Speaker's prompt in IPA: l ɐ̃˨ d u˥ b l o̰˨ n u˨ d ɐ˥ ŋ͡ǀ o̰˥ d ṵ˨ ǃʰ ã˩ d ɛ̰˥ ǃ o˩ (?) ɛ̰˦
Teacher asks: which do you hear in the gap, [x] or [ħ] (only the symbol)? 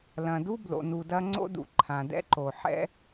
ħ